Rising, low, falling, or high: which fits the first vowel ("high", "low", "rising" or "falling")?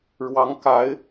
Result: rising